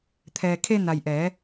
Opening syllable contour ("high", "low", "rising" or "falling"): low